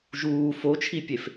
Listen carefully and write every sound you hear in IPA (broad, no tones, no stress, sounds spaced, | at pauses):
ʒ uː f o t͡ʃʰ i pʲ e f